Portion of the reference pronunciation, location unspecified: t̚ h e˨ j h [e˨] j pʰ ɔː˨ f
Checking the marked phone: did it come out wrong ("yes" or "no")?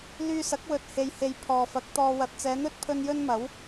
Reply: no